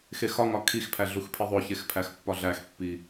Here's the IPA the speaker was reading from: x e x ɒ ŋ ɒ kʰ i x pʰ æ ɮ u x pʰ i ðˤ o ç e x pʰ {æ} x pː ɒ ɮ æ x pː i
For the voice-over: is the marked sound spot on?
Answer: yes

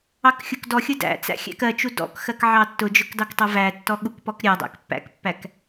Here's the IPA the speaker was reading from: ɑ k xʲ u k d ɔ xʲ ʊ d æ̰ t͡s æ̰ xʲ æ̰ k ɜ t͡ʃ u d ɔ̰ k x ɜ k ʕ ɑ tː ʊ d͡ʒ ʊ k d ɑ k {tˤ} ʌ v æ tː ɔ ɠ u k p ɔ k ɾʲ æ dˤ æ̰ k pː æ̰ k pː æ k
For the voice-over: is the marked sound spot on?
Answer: yes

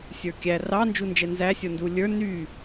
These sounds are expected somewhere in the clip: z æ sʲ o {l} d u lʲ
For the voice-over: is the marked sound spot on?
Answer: no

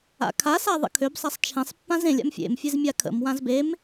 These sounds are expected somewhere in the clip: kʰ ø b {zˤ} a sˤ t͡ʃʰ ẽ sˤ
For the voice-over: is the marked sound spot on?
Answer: no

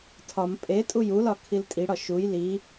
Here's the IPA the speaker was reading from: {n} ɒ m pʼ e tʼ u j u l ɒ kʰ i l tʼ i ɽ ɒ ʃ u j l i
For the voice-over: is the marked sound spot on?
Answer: no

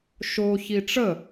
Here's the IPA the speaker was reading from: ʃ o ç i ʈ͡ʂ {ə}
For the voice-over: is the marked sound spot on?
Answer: yes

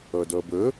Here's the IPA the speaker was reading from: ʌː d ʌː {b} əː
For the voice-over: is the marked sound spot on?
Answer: yes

